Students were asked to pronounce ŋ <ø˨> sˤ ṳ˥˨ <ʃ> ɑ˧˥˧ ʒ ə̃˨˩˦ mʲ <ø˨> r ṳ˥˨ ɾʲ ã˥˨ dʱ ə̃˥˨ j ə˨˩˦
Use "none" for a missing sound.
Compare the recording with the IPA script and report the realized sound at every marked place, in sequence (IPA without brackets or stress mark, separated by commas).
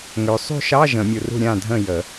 ø˨, ʃ, u˨